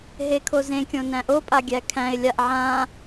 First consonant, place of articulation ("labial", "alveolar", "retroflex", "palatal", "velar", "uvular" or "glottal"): glottal